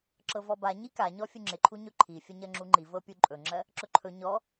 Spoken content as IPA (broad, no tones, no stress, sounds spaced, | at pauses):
ǁ ɤ v ɔ b a ɲ i k a ɲ ɔ fʲ u ŋ͡ǁ ɪ ǃʰ u ɲ ɵ ǃʰ i fʲ ɵ ɲ ɜ ŋ͡ǁ u ŋ͡ǃ i v ɤ pʲ u ǃʼ ɵ ŋ͡ǁ ɜ | ǁ ɵ ǃʰ ɵ ɲ ɔ